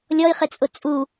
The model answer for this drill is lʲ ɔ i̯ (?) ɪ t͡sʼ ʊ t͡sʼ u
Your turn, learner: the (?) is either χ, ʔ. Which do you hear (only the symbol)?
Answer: χ